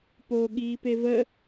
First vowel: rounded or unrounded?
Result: rounded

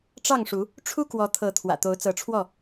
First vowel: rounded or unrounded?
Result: unrounded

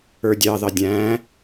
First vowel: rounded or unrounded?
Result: unrounded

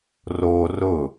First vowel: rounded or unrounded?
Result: rounded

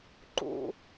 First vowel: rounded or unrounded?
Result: rounded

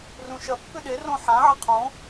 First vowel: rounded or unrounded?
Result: rounded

